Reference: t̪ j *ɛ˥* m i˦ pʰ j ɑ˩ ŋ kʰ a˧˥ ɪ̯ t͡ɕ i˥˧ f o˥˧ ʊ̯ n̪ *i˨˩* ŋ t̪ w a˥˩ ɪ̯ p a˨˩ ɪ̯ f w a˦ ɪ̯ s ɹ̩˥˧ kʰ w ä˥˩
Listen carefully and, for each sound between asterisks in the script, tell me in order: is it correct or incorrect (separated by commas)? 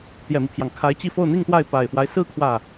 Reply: incorrect, incorrect